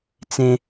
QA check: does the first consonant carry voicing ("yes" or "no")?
no